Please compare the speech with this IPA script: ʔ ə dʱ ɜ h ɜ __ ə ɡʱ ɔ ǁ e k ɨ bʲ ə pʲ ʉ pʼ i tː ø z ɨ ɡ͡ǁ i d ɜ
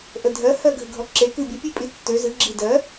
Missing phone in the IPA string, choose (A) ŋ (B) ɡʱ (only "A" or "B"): B